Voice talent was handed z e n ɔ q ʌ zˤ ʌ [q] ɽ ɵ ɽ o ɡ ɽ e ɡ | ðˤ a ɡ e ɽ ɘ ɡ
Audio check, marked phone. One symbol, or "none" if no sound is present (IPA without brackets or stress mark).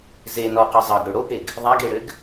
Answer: ɡ